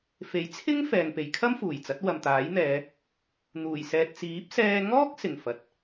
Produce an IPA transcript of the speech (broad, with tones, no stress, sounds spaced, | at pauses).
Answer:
f e˨˥ j t͡sʰ ɪ˥ ŋ f ɛː˧ ŋ p e˨˧ j kʰ ɐ˥ m f uː˨˩ j t͡s ɐ˨˥ t̚ w ɐ˨ m t̪ aː˨˥ j n̪ ɛː˨˧ | n̪ uː˨˩ j s ɛː˨ t̚ t͡s iː˨˥ p̚ s ɛː˧ ŋ ɔː˥ k̚ s ɪ˨˩ ŋ f ɐ˨ t̚